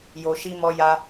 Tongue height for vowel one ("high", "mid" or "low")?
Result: mid